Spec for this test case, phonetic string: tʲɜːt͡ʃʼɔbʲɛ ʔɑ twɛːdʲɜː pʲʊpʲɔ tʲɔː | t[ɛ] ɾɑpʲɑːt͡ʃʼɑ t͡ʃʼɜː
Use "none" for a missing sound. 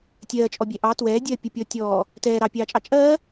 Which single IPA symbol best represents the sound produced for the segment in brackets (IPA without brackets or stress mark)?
ɛː